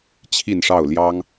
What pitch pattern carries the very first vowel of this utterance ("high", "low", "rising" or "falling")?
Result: falling